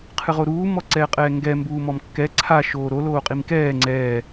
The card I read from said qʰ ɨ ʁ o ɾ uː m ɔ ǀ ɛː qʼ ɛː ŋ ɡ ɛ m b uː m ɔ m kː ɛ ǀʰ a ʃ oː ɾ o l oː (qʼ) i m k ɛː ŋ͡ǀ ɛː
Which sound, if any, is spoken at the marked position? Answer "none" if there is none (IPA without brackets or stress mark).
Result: qʼ